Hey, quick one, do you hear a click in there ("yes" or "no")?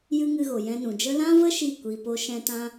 no